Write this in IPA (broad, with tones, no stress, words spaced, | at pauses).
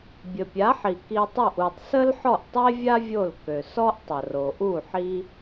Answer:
bʲə˩pʲa˩˥ħi˩ ki˧tˤo˥˩ʔ u˩tˤ sə˥lħɔ˥˩ʔtˤe˥vʲa˥ vʲo˥˩lkø˩ sɔ˥ʔtˤə˩ro˩ ʔu˥˩ ħi˥